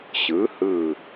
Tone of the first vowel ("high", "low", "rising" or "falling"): rising